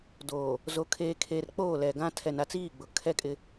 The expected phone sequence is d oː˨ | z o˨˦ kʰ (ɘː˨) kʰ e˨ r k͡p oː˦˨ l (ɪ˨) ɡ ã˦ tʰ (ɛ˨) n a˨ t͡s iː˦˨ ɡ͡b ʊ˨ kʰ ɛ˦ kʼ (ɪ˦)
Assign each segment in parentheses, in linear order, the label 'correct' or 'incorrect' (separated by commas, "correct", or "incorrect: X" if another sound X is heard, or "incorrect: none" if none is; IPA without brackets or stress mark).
incorrect: eː˨, incorrect: ɛ˨, correct, correct